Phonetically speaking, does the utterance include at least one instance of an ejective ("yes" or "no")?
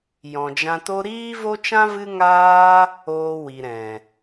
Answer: no